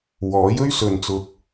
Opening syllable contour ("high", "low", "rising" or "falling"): rising